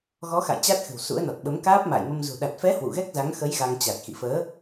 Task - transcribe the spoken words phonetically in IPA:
ɣɔ˨˦xa̰˧˨j t͡ɕa˦˥t̚xɨ̤˨˩wsṵ˧˥ə̯nɔ˨˩t̚ ɓə˨˦mkaː˦˥p̚ ma̰ː˧˨jmə˧mzṳ˨˩ ɗa˨˩t̚fɛ˨˦ hwṵ˧˨ɣɛ˦˥k̚za˨˦ŋ xə˨˦j ɣa˧ŋt͡ɕa˨˩t̚ xḭ˧˨fəː˨˦

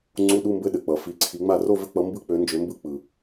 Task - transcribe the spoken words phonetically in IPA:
ŋ͡ǀu˧˥˧ɗu˧˥˧mbɘ˧˥˧ ɗɘ˩k͡pʌ˩ fi˨˦ǀʰi˨˦ŋ͡ma˥˨ ro˥˨vɘ˧˥˧k͡pʌ˨˦mbɯ˧˥˧ k͡pø˨˦nd͡ʒø˨˦mbɯ˧˥˧ k͡pɯ˩

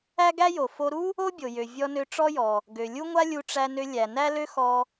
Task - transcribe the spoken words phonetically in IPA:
æ˥ɡæ˥jo˩ fo˧ɾu˥ | o˥bʲo˩jø˩ vʲɔ˧nø˧ʈ͡ʂɔ˥jɔ˩ | ɡø˩lʲu˥ŋʷa˥lʲu˧ ʈ͡ʂæ˧nø˧ lʲæ˩ næ˥lø˥xɔ˧

